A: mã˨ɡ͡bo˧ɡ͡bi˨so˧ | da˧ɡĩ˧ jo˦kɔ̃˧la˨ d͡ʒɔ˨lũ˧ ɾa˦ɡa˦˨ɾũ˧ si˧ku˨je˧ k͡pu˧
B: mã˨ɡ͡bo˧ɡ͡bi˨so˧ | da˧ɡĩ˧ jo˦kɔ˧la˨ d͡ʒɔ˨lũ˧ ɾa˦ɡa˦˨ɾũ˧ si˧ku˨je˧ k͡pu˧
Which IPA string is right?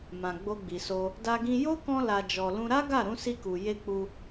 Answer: A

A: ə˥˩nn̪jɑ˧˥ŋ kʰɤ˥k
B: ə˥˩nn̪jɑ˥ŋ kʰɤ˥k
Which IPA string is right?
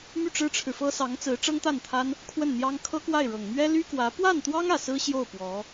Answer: B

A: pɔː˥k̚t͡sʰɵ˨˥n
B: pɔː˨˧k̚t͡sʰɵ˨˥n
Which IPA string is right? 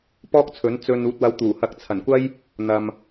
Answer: A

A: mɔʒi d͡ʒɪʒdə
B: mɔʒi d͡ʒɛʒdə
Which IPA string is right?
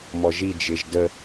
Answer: A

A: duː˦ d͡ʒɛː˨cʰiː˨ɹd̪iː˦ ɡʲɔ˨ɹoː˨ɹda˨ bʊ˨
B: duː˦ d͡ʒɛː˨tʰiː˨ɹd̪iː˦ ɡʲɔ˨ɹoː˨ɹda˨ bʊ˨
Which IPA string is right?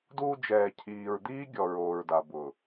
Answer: A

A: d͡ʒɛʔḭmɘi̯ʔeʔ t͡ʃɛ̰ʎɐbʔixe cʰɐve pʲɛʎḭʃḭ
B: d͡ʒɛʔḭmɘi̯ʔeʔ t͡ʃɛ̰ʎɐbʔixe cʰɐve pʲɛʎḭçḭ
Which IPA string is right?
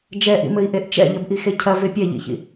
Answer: B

